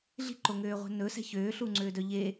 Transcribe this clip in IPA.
ɮ i̤ ǃ o ŋ øː ʁʷ ɛ̤ n ɵ s ɛ̤ ç øː ɬ u ŋ͡ǀ øː d œ ʎ e

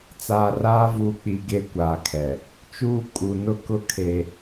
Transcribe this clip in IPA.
t͡s aː˨ r aː˦ v uː˨ k͡p i˨ ɡ e˦ kʷ aː˨ kʰ ɛ˨ | t͡ʃ uː˦ kʼ u˨ n ʊ˦ k ʊ˦ kʰ e˦

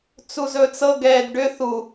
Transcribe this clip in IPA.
t͡s u z ɵ t͡s ɤ ɡ ɛː d ɖ ʏ θ u

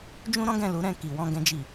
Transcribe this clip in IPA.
d͡ʒ ũ˦ ɾ ɔ̃˦ ɡ ɛ̃˦˨ l u˨˦ ɾ ɛ̃˦˨ k i˨ w ɔ̃˨ ɡ ɛ̃˨ d͡ʒ i˨

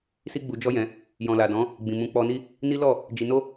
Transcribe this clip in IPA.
s i˦ ɡ͡b u˧ d͡ʒ ɔ˦ j ɛ̃˧ | j ɔ̃˨ l a˨ d ɔ̃˨˦ | ɡ͡b ĩ˨ m ũ˨˦ k͡p ɔ˧ n i˦ | n i˦ l ɔ˦˨ | d͡ʒ i˧ n o˦

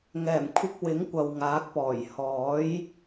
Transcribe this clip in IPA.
ŋ ɛː˨˩ m kʷʰ ɪ˧ k̚ w ɪ˨˥ ŋ kʷ ɐ˨ w ŋ aː˨˥ k̚ p ɔː˨˩ j h ɔː˨˥ j

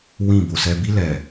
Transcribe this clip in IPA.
w ĩ˦˨ b o˨ s ɛ˦ b i˦ l ɛ˨

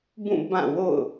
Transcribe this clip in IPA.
b ũ˦˨ b ã˦˨ w o̰˦˨ ʊ̯

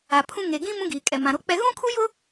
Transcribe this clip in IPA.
a˨ pʰ ũ˦ ŋ e˨ ɡ ĩ˦ m ũ˦ ɡ iː˨ kʼ ɛ˨ m ã˨ ɾ o˦ k͡p ɛ˦ ɣ ũ˦ kʰ u˦ j ʊ˦

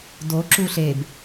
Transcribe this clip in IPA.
d o ǁ u ɬ e b

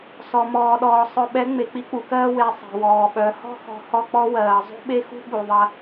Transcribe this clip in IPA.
s ɔ˨ m ɔː˨ ɗ ɔː˨ sˤ œ˨ ɓ ɛ˨˦ ŋ͡m e˨ k͡p i˦ k͡p u˨ k ɜː˦ w e˨ sˤ ɛ̤˨ w ɔː˨ ɓ œ˨˦ h ɔ̤˦ x ɔ̤˨ h ɔ˦ k͡p ɔ˦ w ɜː˨ zˤ ṳ˦ ɓ e˦ x ṳ˦ ɓ u˨ ðˤ ɐ˦

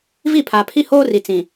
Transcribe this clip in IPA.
v i˦˨ pʰ aː˨ pʰ i˦ h oː˦ r i˨ t͡s ĩ˨

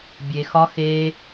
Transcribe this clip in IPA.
bʲ e x ɒ x e

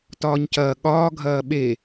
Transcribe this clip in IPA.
t ɒː ɲ c ɐː ɠ ɒː ɡʱ ɐː ɓ e

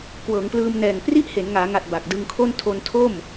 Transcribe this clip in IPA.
k w ɤː˩˦ ŋ p l ɯː˧ m n ɛː˨˩ ŋ p r i˥˩ ʔ h e˩˦ n ŋ aː˩˦ ŋ a˨˩ t̚ b a˨˩ k̚ d ɯ˧ ŋ kʰ o˥˩ n tʰ o˧ n tʰ o˥˩ m

